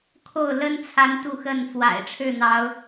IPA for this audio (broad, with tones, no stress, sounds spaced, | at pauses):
kʰ o˥˨ ʊ̯ l ə˦ n t͡sʰ a˨˦ n t̪ u˥˨ x ə˥˨ n f w a̰˨˩ ɪ̯ ʈ͡ʂʰ ɻ̩˥˨ n̪ ɑ˨˦ ʊ̯